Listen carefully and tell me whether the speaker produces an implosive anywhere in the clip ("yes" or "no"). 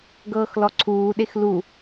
yes